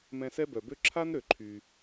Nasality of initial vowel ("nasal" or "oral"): nasal